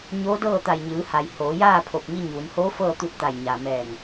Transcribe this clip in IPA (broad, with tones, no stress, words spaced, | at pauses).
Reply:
ɲoː˧˥dɤː˥˨t̪a˧˩j ɲɯː˩˧ha˩j hoː˩˧jaː˥˨pʰo˧˩p̚ ŋi˧ɲuː˩˧nhoː˧˥ fɤː˥˨t̪u˧t̚t̪a˧˩j ɲa˩ mɛː˧˩ŋ